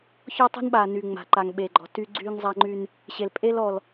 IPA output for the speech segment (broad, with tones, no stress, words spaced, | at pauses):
çɔ˦tˤe̤˦nɓa˨ ny˨ŋ͡ma̤˨ ǃa˨ŋ ɓe˨ɡ͡ǃɔ̤˨ ty˦ ɡ͡ǀy˦ŋzˤa˦ŋ͡ǃy˦n | ɕe˨lpʼe˦l ɔ˨l